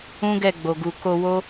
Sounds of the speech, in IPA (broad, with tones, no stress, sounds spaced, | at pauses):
ũ˦ ɡ ɛ˦˨ ɡ͡b o˨ ɡ u˨ k o˧ w o˦